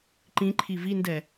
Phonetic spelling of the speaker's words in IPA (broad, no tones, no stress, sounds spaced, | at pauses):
ǃ ĩ ǃʰ i v i n d ɛ